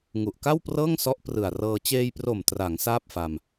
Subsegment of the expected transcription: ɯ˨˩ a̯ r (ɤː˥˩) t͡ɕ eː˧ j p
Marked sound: incorrect: ɤː˧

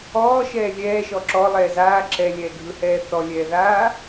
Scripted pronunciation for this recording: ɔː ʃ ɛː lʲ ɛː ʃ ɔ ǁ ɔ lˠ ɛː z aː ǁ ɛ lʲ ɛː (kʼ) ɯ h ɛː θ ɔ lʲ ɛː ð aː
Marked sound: incorrect: ɡʱ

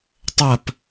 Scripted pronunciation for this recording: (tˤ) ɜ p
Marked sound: correct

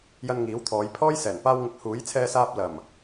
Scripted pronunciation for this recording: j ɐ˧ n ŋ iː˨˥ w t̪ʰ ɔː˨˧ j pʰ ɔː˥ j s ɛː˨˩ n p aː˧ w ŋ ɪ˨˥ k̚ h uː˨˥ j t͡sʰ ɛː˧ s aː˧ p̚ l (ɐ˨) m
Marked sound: incorrect: ɐ˨˩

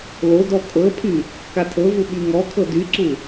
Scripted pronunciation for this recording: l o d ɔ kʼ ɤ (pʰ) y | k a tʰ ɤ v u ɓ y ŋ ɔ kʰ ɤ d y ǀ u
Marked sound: correct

